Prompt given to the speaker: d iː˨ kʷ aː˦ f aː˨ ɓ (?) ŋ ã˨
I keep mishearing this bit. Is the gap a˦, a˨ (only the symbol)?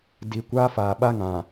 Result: a˦